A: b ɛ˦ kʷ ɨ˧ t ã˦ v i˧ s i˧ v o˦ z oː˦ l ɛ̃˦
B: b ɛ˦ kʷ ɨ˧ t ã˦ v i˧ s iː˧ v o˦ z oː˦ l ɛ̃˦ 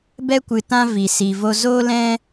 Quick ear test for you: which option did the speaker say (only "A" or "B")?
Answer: A